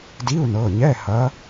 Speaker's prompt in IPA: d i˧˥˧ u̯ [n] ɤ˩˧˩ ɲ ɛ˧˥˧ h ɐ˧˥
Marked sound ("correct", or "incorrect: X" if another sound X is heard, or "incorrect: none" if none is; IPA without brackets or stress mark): correct